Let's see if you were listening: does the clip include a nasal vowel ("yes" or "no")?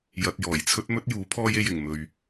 no